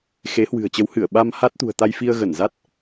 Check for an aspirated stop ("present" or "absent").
absent